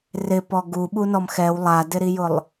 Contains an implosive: yes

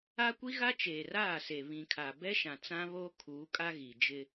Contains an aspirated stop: yes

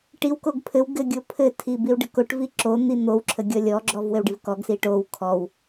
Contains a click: yes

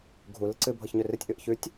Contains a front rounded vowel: yes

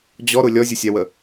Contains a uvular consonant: no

